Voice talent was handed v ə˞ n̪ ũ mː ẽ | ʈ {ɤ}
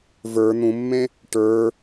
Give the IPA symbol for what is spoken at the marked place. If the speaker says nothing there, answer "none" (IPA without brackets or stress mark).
ə˞